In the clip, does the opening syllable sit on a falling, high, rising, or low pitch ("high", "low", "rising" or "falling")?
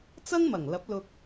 high